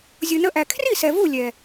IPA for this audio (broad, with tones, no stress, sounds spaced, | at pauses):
zʲ u˨ n ə˧ ʔ æ˨ kʰ r i˦˨ s ɛ˨ v u˦˨ lʲ ɛ˨